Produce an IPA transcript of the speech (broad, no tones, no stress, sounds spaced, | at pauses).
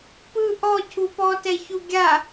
p ɯ ʔ ɔ cʰ u p ɔ t ɛ ç u ɡʲ a